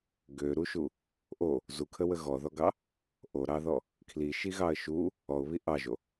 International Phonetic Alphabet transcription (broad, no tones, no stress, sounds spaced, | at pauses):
ɡ ø ɾ u ʃ u | ʔ o | z u kʰ ə w ə ɣ ɔ ð ɔ ɡ ɑ | ʔ o ɾ ɑ ð ɔ | kʰ l i ʃ i ɣ ɑ ə̯ ʃ u | ɔ ʊ̯ β i ʔ ɑ ʒ o